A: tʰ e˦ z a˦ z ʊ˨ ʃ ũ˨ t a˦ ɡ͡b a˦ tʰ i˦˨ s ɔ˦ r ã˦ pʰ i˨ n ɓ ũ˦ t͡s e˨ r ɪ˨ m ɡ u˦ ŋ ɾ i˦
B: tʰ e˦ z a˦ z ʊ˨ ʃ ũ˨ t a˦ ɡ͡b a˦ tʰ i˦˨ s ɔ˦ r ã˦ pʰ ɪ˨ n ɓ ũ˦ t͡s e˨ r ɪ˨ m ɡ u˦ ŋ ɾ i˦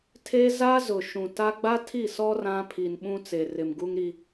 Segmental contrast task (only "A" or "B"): A